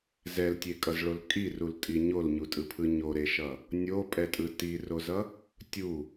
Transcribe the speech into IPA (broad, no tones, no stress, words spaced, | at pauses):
zɛltʲekʼʌzɭol kʼirultʼi ɲolɲutʼɯpʰɯ ɲoɾeʃʌ | nʲopʼɛtʼɯ tirozʌ | tʲu